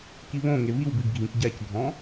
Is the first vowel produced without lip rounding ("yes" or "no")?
yes